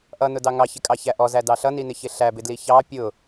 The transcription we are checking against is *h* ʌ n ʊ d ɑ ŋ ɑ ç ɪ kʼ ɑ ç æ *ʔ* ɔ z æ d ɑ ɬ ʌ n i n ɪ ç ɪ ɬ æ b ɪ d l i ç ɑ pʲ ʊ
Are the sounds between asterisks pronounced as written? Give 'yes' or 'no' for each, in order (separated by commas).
no, yes